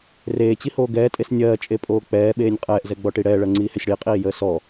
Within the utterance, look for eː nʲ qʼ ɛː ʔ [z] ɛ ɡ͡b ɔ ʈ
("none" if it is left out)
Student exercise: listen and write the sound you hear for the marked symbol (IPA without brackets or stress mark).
z